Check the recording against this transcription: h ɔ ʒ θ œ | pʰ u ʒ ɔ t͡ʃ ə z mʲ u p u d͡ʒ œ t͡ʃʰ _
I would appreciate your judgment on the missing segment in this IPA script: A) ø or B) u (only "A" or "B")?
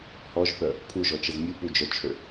A